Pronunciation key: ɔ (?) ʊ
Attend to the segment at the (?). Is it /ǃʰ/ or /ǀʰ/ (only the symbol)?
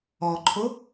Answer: ǃʰ